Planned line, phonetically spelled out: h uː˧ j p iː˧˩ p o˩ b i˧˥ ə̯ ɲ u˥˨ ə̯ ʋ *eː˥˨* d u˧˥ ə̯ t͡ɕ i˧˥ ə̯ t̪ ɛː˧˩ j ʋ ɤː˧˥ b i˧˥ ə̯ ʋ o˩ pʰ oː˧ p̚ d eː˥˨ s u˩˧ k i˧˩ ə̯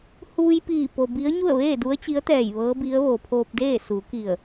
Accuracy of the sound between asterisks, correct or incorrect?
correct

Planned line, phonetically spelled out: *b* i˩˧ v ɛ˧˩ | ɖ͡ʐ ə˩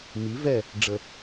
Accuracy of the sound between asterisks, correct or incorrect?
incorrect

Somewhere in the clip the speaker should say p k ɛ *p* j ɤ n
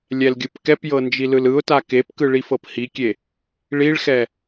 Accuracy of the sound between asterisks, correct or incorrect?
correct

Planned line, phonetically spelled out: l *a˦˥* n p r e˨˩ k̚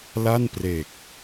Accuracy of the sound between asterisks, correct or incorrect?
incorrect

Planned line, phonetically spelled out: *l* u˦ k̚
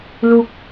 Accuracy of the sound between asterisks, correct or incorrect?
correct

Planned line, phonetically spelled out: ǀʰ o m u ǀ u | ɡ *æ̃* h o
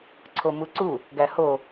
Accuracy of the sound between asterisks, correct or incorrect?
incorrect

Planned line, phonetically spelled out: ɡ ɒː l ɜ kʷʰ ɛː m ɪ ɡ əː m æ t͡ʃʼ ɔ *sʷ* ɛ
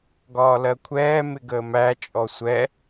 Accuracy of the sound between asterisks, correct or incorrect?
correct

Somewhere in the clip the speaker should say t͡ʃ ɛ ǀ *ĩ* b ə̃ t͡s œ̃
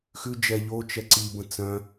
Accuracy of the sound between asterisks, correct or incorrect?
incorrect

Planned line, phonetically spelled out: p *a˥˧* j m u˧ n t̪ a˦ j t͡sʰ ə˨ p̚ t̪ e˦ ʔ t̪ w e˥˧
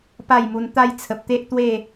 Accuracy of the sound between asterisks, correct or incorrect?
correct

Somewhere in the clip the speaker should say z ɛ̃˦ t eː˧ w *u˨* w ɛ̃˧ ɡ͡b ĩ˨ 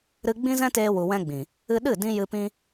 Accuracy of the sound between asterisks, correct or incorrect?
correct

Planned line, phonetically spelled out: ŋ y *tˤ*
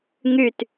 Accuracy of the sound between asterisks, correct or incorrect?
incorrect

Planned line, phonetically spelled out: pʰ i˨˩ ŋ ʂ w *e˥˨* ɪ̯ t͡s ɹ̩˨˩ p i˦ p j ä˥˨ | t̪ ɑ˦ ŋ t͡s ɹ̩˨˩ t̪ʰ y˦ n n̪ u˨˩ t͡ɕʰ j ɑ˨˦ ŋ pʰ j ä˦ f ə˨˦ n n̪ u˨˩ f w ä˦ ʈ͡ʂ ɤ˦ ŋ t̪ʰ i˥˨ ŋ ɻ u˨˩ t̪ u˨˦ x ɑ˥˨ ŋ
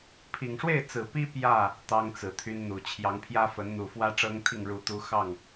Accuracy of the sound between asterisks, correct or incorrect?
correct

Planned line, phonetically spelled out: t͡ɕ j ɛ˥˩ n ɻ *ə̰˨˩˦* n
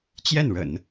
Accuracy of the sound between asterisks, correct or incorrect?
correct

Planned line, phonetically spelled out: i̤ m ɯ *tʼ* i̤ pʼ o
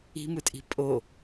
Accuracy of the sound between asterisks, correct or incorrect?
correct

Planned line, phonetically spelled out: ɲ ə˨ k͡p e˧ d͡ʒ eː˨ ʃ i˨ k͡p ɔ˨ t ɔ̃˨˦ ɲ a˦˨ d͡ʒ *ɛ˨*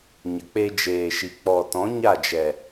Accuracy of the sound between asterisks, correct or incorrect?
correct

